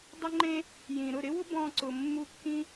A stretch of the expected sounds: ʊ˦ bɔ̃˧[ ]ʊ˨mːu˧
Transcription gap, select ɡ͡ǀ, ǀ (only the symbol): ǀ